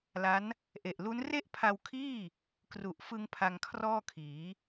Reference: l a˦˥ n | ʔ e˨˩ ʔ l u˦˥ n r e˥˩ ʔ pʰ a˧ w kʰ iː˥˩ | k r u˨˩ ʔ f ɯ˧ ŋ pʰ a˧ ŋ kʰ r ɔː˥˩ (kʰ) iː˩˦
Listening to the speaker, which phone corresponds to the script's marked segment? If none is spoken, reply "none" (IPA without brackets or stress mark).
kʰ